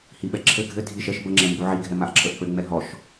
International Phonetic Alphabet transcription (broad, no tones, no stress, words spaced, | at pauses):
hiɓɛǁʰɘ ɡʱɘ dʱiʃ ɛʃ bəŋ͡ǁɛ mbuʕiɡʱɛ maʔǁʰəʔk͡pɘ ŋ͡mɛɦɔʃ